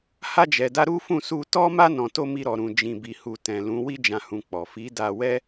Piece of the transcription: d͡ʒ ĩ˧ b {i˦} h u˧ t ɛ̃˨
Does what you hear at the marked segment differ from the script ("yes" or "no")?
yes